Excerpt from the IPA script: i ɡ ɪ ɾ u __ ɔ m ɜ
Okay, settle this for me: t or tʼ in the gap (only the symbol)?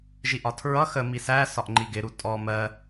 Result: tʼ